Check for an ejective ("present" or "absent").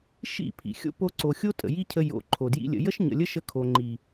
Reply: present